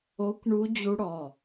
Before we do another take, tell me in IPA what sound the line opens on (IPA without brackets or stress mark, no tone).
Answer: o